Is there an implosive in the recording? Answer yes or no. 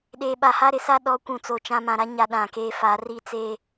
yes